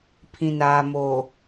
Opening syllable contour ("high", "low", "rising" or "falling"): low